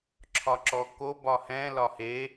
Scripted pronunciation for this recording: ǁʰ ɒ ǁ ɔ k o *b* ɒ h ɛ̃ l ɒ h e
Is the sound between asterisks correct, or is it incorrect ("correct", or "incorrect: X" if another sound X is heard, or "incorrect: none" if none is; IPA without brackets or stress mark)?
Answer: correct